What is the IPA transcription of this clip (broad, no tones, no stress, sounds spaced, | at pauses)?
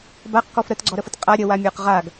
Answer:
b a q k ɔ f ɾ ə t ɡ͡ǀ ɔ ɾ ə f ə t qʼ a ɾʲ ə w a mʲ ə˞ q ʁ a ɡ